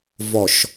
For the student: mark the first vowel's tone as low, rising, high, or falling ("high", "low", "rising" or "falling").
low